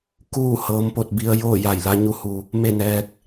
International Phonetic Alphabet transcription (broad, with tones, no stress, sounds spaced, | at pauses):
k uː˥˨ h ɤː˧˥ m p o˧ t̚ b i˧ ə̯ j oː˥˨ j a˧˩ j l a˧ ɲ u˧ h u˩ | m e˥˨ n ɛː˧ k̚